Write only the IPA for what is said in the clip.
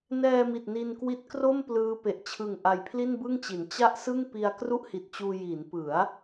n ɛː˧ m i˨˩ t̚ n i˧ n k w i˦˥ t̚ k r o˥˩ m p l ɯː˦˥ p e˨˩ ʔ t͡ɕʰ ɯ˨˩ ŋ ʔ a˧ j pʰ l i˥˩ n b ɯ˥˩ ŋ t͡ɕ i˩˦ n t͡ɕ a˥˩ ʔ s ɯ˥˩ ŋ p i˧ a̯ k r u˥˩ ʔ h i˨˩ t̚ t͡ɕ uː˧ j i˩˦ n p ɯ˩˦ a̯

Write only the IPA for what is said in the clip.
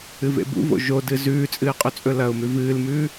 ɨ v ḛ b ṵ v o̰ ʒ o d ɨ z ʉː t͡sʼ ɨː qʼ ɵ t͡sʼ ɵ l ɐ ʊ̯ m ʉ v ɨː l m ʉː

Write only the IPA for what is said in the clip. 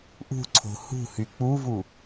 ʔ ṳ ǀʰ o̤ h ṳ h y k͡p u v u

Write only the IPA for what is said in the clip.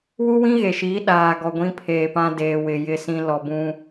w u˦ w ĩ˦ ɣ e˨ ʃ iː˨˦ ɗ aː˨ ɡ ɔ˨ ɡʷ ĩ˦ pʰ eː˨ p ã˦ d eː˨ w ɪ˨ j ɪ˦˨ s ĩ˦ l ɔ˨ b ũ˦

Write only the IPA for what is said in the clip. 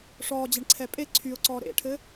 ʂ ɔː d͡ʑ ɛ ɳ ǀʰ ɛ pʼ e ǀʰ y ʊ̯ ǀ ɔː ɾ ḛ ʈʰ ɘ

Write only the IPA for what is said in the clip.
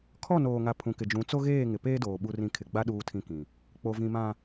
kʰ ɔ˦˨ n oː˨ ŋ a˨ pʰ ũ˨ k ɪ˨ d͡ʒ ũ˨˦ t͡s o˦ ɣ eː˦˨ ŋ ɪ˨ p eː˦ d oː˨ ɓ u˦ r ĩ˦ kʰ ɪ˨ ɡ͡b a˦ ɗ uː˦ tʰ ĩ˦ k ĩ˨ | k͡p o˨ v ĩ˨ m ã˨

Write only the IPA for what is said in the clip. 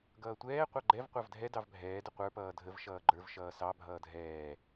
ɡ ʌː tʷ ɛː qʷ ɑ ɡ͡ǃ ɛ v qʷ ɑ v dʱ ɛ d ɑ v bʱ ɛː d ə qʷ ə˞ p ʌː dʱ ə v ʃ ʌː ɡ͡ǃ ə˞ v ʃ ʌː s ɑ bʱ ʌː dʱ ɛː

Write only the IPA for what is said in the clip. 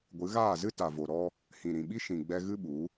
ɡʷ ɨ˨˦ ɣ aː˦˨ z ɨ˦ t a˨ v o˨ ɾ ɔ˦ | h ĩ˨ ɾ ĩ˨ ɓ i˦ ʃ ĩ˨ ɡ͡b ɛ˧ ɣ ɨ˦ ɓ u˨˦

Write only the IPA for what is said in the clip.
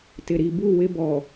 t ɪ˨ ɾ i˨ b u˦˨ w ɪ˦ b ɔ˨

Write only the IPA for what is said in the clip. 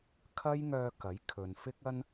kʰ ɐ˥ j ŋ œː˧ k ɐ˨˥ j kʰ ɵ˨ n f ɪ˥ k̚ ɐ˥ n

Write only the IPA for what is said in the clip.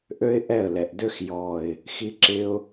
ʔ ø˦ ɪ̯ ʔ ɛ˦˨ ə̯ l ɛ˨ ʔ d ø˦ x j ɔ˦˨ ɪ̯ | x i˧ ǁ ɪ˧ ʊ̯

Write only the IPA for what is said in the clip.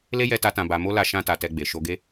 l e˦ j ɛ˧ t a˧ t ã˧ b a˧ m o˦ l a˧ ʃ ã˦ t a˧ t ɛ˧ ɡ͡b e˨ ʃ o˧ ɡ e˦

